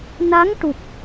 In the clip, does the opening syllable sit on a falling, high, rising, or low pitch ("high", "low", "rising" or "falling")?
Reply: rising